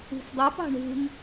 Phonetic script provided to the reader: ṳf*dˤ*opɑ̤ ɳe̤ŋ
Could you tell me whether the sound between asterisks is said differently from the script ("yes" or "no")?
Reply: no